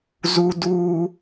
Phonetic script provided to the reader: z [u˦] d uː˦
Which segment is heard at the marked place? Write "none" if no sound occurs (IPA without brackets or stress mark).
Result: u˦